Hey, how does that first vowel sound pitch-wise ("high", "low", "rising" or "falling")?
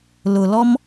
low